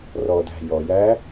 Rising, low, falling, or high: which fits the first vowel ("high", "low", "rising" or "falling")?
low